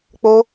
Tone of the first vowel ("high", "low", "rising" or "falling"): high